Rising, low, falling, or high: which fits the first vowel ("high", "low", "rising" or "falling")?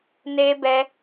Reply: high